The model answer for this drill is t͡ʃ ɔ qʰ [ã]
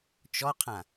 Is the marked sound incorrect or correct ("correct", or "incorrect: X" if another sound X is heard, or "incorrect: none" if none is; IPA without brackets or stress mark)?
correct